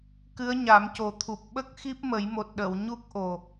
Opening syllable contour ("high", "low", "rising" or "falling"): rising